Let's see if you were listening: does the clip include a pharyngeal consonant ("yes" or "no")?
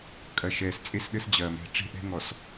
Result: no